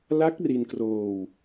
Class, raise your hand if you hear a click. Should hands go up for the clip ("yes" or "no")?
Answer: no